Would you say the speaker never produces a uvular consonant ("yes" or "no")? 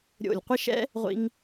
no